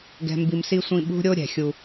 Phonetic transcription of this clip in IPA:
ɡɛ̤˨mbi˨m si˨sʷĩ˨ ɓṳ˦ɾʲo˦ ɾʲɛ̤˨xʲu˦

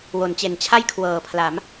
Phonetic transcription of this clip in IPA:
wo˩˦nt͡ɕe˨˩nt͡ɕʰa˥˩j kʰwɤː˨˩pʰla˩˦m

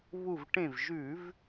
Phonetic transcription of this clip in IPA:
βu˧˩v ʈẽ˧˩vʒʉ˧˩˧v

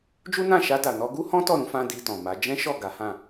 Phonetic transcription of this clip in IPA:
d͡ʒu˦nã˦˨ ʃa˧da˨ nɔ˧ɡu˦hɔ̃˦ tɔ˦˨ɾũ˧ fã˧ di˧tɔ̃˨ma˨˦ d͡ʒɛ̃˦ʃɔ˦˨ ɡa˨˦hã˦˨

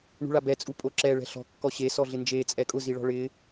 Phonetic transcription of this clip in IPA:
ɳṳɭabɛ t͡sʼupʼoǁɛ ɭɛ̤ɬɔ̤ kːɔɕe sɔɮɪnd͡ʒeː t͡sʼɛkʼʊ ziɭɔ̤ɭɪː

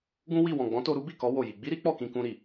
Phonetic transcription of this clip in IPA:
ɡũ˦wi˦˨ wɔ̃˨ɡ͡bɔ̃˨˦to˧ ɾu˦bi˦˨kɔ˨˦ wo˦˨ji˧ ɡ͡bi˦ɾi˦ k͡pɔ˦˨kĩ˧kũ˧ɾi˨

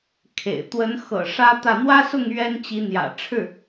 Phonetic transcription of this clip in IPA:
kʰḛ˨˩ɪ̯ t̪wə˧˥nxɤ̰˨˩ ʂä˥t̪ä˥˩ n̪wä˥sʊ˥˩ŋ ɥɛ˥nt͡ɕi˧˥ n̪jä̰˨˩ʈ͡ʂʰɻ̩˥˩

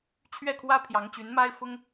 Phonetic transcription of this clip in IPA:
t͡ɕʰɥɛ˥˩kʰwä˥ pʰjɑ˧˥ŋt͡ɕy˧˥n ma˥ɪ̯fʊ˥ŋ

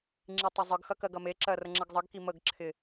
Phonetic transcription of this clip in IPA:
ŋ͡ǁitˤɐzˤɯɡxɐ kɜɡɐmeǁɜ rəŋ͡ǁəɡzˤəɡki məɡǁʰɪ

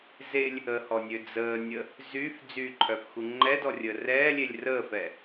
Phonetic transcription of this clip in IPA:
zelʲ | əhɔnʲø d͡zəːnʲə | zyf d͡zyǃʰœfxu ŋ͡ǃɛdɔrʲə rɛːlʲelʲ rəːfɛ

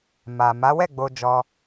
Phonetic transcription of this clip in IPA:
ma˨ ma˨˦wɛ˦˨ ɡ͡bo˧d͡ʒɔ˧

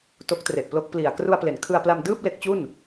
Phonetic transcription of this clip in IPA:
to˦˥k̚tre˨˩ʔplo˦˥k̚ pli˨˩a̯ kru˧a̯ple˩˦nkʰɯ˧a̯pla˧m dɯː˥˩p̚ le˦˥k̚t͡ɕu˥˩n

